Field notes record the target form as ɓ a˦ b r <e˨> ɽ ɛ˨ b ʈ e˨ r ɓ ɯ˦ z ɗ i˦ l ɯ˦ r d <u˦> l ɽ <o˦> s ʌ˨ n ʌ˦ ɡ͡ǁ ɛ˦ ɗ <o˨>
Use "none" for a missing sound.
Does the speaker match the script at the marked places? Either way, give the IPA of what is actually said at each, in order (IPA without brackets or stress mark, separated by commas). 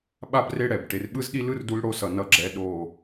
e˦, u˦, o˦, o˦˨